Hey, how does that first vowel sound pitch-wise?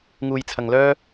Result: low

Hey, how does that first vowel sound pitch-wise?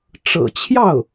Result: low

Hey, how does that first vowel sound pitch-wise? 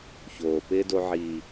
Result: low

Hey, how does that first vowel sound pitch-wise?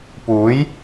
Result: rising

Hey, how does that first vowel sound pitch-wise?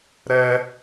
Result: high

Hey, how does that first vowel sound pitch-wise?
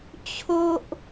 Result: high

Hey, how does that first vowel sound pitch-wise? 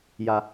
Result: high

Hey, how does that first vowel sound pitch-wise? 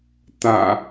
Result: low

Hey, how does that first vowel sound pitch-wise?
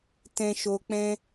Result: low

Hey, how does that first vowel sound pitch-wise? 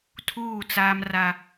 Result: falling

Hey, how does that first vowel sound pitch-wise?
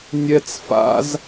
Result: high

